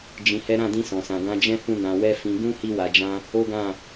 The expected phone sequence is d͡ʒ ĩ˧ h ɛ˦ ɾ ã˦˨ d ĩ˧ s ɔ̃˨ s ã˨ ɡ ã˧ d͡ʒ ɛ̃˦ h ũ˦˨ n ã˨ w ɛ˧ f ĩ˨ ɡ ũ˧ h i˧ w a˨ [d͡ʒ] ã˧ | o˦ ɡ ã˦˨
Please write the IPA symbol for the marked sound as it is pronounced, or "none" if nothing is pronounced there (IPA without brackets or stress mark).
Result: d͡ʒ